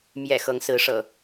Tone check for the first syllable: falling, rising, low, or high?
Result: low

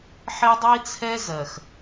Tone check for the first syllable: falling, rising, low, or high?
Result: high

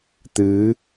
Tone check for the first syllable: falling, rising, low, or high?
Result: rising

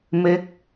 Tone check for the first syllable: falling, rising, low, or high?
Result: falling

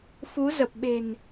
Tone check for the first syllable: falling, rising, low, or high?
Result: rising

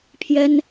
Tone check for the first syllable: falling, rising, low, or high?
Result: high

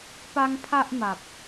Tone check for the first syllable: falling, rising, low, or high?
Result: high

